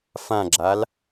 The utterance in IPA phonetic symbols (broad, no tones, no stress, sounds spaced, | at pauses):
f ã ɡ͡ǁ a l